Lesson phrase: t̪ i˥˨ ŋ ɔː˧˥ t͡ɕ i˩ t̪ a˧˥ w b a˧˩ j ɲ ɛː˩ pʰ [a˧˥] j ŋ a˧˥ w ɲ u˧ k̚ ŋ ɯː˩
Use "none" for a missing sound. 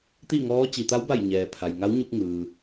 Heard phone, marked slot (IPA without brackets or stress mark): a˩